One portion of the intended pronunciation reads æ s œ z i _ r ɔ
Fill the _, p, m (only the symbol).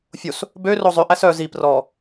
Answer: p